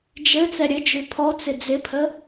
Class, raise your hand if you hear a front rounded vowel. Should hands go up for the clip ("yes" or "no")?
no